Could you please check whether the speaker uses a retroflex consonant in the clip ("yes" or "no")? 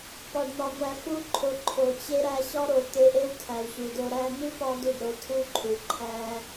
yes